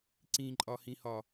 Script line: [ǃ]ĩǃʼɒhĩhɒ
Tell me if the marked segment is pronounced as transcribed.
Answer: no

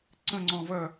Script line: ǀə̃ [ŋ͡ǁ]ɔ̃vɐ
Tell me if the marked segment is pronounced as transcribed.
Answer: no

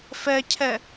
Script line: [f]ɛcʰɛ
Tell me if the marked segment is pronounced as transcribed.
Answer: yes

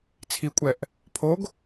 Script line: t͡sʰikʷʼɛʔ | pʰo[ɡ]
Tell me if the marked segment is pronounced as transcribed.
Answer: yes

